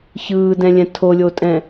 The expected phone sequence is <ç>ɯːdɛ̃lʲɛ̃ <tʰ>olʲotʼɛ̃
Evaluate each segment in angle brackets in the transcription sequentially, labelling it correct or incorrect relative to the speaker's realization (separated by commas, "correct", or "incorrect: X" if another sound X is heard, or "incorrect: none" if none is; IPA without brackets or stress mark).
correct, correct